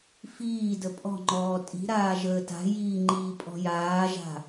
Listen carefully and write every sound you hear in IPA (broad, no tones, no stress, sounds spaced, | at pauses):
f iː d ə pʼ ɔ̤ ŋ͡ǃ ɔː tʼ i̤ ɾ aː ʒ əː t a̤ j iː ŋ͡ǃ iː pʼ ɔ̤ j aː ʒ a̤